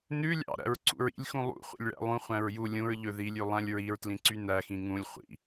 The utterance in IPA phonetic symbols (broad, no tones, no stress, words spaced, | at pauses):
nʉ lʲɑ̰ ɾæ̰ɹǀṵɹḭlʲxũ lˠṵ χʷḭlʲɭæ̰lˠũ χʷæ̃ɹju lʲũɹ ʎɵðilʲʉ lˠæ̃lʲɹiɹtlĩǀy næxĩ ŋũlʲ χʷḭ